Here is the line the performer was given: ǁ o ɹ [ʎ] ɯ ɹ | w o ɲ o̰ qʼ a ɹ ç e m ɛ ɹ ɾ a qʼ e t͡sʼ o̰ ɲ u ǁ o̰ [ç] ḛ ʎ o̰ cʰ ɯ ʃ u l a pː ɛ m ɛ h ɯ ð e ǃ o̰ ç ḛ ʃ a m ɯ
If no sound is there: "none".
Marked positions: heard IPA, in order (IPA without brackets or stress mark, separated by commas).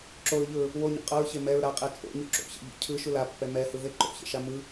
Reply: ʎ, ç